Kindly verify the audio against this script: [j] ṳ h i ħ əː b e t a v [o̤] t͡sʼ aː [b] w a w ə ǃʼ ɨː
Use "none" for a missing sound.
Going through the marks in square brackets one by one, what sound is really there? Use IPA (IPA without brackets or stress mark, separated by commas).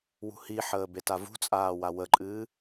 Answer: w, ṳ, none